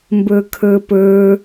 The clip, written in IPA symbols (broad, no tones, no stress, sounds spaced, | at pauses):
m b ə˞ kʰ ə˞ p ə˞